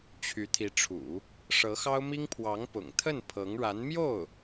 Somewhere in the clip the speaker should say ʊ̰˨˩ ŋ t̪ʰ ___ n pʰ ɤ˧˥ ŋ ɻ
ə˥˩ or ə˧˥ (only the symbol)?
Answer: ə˥˩